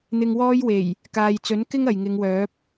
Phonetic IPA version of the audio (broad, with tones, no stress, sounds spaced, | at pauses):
n̪ ɪ˧ ŋ w ɔː˥ j w e˨˩ j | k aː˨ j t͡s ɵ˨˥ n k ɪ˥ ŋ ɐ˨ j ŋ ɪ˨˧ ŋ w œː˨˥ p̚